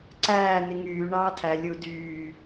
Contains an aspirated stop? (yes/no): yes